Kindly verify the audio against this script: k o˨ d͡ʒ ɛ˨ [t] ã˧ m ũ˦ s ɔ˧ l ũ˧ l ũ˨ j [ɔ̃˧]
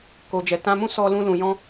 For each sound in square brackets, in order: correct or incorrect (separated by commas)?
correct, correct